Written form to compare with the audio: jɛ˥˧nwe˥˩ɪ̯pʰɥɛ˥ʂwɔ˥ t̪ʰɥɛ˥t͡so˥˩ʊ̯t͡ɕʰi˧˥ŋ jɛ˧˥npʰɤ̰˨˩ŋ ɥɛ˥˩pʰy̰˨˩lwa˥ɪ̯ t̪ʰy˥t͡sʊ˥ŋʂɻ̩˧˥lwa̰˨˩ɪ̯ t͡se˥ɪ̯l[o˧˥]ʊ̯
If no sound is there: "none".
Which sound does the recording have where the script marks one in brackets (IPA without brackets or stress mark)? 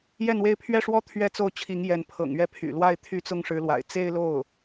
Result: o˥˩